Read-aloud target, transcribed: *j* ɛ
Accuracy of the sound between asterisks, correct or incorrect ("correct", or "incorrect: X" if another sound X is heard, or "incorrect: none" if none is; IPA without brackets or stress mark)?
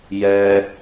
correct